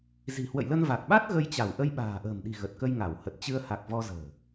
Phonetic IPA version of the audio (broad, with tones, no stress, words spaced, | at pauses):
zi̤˨˩hwə̰˧˨jlə˧n va˨˩k̚ɓa˦˥t̚ ɣə˧jt͡ɕa˧˩w ʔə˧jɓa̤ː˨˩ʔə̤ː˨˩mɗi̤˨˩ ɣə˨˩t̚kə˧j ŋa˧˩whə˨˩t̚ t͡ɕɨ˧ə̯ha˨˩k̚vɔ˧ zə̤ː˨˩